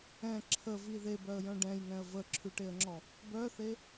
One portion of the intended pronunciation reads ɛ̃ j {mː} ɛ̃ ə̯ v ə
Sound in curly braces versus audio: incorrect: ŋ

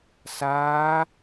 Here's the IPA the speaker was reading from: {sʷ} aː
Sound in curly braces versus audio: incorrect: s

